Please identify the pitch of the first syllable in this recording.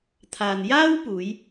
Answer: low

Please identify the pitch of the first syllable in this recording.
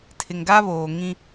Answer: low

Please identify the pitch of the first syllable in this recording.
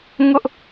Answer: high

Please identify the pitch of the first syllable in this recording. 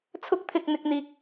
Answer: high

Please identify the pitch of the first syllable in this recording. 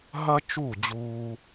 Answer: high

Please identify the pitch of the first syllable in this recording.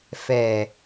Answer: low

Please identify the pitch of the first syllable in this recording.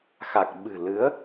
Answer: low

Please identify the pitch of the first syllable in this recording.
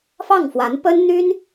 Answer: falling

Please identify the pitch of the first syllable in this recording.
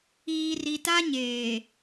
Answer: low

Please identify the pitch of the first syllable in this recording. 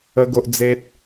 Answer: high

